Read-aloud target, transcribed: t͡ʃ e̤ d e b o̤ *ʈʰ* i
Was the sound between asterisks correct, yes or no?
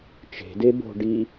no